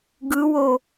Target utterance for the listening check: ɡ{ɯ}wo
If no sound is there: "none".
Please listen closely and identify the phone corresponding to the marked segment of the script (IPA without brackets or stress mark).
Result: ɯ